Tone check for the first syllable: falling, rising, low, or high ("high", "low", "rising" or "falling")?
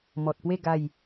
low